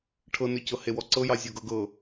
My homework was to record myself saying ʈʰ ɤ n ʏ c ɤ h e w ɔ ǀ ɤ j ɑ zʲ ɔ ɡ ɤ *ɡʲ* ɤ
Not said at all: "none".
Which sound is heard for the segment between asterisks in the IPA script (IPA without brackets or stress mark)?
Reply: ɡ